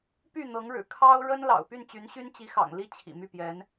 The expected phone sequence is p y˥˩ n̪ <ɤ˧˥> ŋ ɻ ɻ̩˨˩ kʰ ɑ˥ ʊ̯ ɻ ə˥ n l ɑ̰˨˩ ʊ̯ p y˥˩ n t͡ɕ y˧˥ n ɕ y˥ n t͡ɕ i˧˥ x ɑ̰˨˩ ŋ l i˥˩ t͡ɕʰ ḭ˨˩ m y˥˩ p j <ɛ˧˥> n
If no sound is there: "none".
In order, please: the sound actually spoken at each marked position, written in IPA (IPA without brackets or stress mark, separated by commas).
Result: ɤ˧˥, ɛ˧˥